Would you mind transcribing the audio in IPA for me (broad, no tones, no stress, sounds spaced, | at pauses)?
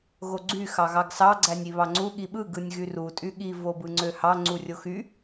ɣ o ɡ͡ǀ y x ɑ ɣ ɑ ɡ s ɑ ɡ͡ǀ æ nʲ i β ɑ ŋ͡ǀ u ɠ i ɓ ɯ ɡ ɯ nʲ ɣ y r u tʼ y ɠ i v o b ɯ ŋ͡ǀ ø h ɑ ŋ͡ǀ u rʲ o x y